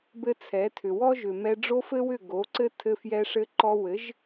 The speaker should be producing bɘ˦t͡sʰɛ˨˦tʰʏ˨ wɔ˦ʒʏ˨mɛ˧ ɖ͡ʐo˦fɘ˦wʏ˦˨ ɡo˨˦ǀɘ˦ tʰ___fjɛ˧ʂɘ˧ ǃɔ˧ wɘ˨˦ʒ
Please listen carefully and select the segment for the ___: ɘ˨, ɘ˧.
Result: ɘ˧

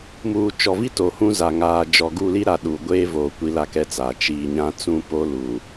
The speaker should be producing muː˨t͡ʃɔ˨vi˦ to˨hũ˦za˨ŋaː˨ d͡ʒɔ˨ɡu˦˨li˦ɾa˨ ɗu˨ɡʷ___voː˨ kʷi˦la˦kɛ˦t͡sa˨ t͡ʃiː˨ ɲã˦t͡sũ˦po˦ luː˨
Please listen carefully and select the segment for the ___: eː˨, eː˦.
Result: eː˦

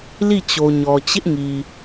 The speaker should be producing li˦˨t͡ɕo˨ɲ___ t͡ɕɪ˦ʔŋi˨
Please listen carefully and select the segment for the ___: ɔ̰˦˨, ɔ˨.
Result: ɔ˨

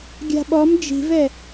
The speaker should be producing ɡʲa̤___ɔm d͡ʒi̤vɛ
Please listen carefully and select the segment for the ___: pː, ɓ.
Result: ɓ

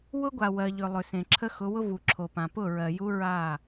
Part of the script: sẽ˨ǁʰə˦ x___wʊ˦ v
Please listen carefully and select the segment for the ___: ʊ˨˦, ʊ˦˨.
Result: ʊ˨˦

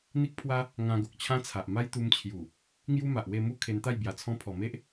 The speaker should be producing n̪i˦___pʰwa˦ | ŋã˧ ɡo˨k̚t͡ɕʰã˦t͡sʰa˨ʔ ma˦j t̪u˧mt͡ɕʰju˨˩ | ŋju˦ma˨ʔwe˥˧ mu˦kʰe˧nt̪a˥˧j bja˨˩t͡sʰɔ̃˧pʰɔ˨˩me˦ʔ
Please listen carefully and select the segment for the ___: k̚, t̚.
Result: k̚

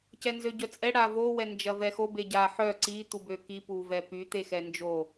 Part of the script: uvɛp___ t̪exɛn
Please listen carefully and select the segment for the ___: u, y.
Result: y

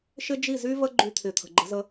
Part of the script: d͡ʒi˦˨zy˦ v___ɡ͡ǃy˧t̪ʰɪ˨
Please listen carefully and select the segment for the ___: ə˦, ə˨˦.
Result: ə˦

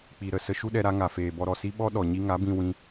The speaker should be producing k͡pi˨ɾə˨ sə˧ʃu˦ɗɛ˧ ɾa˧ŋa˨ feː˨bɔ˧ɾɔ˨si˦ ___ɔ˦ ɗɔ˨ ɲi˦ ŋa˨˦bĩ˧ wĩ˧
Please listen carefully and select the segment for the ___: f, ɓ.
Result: ɓ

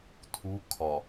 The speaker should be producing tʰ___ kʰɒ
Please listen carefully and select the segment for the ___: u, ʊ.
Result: u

